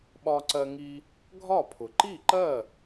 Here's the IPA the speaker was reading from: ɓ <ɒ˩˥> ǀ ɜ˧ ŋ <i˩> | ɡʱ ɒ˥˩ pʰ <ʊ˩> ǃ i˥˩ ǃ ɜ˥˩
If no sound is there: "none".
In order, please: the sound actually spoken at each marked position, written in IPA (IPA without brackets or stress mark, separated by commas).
ɒ˧, i˧, ʊ˩